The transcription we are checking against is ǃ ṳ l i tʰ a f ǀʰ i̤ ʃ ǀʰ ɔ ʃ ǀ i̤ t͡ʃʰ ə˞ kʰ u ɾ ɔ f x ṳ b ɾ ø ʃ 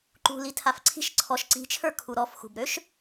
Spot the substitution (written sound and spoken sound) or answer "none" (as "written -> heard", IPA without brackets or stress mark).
none